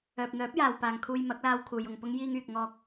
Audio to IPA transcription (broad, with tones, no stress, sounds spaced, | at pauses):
œː˨ p̚ n̪ œː˨˥ p̚ j aː˨ w p aː˨ ŋ kʰ uː˧ j m ɐ˨˥ k̚ l aː˧ w kʰ uː˨ j ʊ˧ ŋ p ʊ˥ ŋ j iː˧ ŋ yː˨ k̚ ŋ ɔː˧ k̚